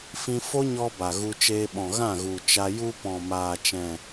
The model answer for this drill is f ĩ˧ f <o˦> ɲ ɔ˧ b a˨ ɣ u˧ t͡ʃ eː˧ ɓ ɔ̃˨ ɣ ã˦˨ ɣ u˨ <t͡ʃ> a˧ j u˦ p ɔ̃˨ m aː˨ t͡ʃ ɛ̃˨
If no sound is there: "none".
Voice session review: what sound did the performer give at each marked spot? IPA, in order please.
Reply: o˦, t͡ʃ

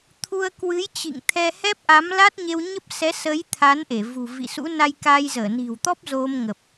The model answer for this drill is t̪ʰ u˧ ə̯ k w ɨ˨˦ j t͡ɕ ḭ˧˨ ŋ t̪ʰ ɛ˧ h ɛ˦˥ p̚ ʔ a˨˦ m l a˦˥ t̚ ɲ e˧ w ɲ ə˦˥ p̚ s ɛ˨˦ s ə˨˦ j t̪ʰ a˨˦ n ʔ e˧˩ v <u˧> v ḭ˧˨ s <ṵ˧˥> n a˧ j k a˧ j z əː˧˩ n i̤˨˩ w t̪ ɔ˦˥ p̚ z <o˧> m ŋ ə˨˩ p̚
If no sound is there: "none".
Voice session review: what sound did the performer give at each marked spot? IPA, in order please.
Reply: ṳ˨˩, ṵ˧˥, o˧

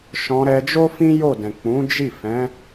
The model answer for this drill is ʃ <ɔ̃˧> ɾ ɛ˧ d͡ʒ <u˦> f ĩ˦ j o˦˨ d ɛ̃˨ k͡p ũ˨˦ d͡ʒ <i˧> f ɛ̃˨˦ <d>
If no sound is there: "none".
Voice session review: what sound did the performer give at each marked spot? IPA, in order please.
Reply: ɔ̃˧, o˦, i˦˨, none

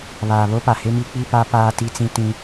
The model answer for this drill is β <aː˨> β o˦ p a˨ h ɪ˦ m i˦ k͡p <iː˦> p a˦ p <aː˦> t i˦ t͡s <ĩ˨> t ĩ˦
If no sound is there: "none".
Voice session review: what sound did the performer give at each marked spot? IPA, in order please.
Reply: aː˨, i˦, aː˦, ĩ˦

